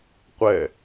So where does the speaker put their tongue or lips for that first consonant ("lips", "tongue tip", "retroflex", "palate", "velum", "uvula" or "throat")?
uvula